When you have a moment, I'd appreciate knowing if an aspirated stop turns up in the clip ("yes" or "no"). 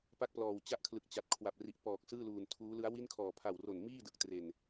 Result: yes